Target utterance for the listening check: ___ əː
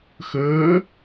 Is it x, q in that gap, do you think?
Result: x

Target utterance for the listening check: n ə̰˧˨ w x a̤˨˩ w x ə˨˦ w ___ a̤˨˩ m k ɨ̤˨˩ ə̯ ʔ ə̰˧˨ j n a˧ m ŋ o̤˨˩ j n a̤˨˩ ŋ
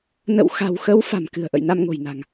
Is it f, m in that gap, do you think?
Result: f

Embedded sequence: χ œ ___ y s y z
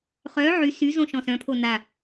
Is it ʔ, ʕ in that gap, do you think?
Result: ʕ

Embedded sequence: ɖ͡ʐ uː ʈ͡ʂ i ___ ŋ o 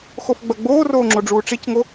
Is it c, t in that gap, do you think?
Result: c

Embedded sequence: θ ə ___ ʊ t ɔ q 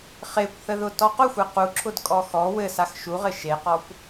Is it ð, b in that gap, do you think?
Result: ð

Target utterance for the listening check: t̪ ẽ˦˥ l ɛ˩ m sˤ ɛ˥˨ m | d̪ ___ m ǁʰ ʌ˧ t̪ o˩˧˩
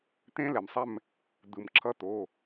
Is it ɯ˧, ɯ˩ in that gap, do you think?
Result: ɯ˩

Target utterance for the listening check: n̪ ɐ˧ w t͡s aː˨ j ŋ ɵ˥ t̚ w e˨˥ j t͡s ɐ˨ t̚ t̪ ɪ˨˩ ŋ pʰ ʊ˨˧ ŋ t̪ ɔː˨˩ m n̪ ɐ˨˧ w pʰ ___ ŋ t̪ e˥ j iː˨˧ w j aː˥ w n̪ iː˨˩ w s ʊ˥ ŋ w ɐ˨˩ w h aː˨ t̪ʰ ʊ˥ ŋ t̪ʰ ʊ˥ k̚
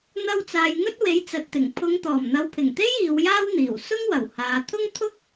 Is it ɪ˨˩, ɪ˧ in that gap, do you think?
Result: ɪ˨˩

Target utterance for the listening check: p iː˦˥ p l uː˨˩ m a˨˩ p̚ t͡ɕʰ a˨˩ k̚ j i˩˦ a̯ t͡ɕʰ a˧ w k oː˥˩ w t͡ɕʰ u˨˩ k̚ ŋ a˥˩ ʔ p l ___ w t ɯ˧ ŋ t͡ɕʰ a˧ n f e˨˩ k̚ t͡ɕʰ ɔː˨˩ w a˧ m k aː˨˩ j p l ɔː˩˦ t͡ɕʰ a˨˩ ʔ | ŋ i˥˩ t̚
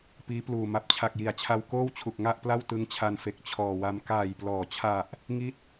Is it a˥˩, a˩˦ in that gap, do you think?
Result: a˥˩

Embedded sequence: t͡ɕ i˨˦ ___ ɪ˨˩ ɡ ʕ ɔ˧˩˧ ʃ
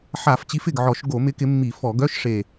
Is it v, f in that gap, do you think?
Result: f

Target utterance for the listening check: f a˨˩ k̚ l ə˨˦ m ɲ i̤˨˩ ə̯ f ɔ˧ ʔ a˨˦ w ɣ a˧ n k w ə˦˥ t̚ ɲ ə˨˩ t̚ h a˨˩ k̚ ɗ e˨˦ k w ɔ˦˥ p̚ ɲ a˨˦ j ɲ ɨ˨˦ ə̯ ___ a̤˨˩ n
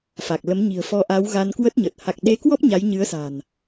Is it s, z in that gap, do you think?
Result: s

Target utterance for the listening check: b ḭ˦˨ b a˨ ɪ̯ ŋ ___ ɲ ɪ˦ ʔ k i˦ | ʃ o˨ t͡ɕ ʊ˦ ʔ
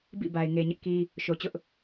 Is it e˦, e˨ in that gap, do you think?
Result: e˨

